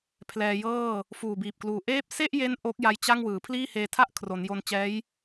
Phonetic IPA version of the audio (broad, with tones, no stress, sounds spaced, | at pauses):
pʰ l ɛː˧ j ɤː˥˩ | f uː˨˩ b iː˨˩ p̚ k l uː˨˩ ʔ eː˥˩ p̚ s e˥˩ ʔ j e˦˥ n ʔ oː˦˥ k̚ j a˦˥ j t͡ɕ a˥˩ ŋ w ɯː˩˦ pʰ l iː˥˩ h eː˧ tʰ a˥˩ ʔ kʰ r o˩˦ n j o˧ n t͡ɕ ɛː˦˥ j